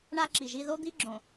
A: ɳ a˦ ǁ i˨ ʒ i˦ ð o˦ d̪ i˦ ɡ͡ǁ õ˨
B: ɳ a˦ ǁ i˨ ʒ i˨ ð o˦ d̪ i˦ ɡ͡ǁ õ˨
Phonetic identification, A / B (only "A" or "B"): A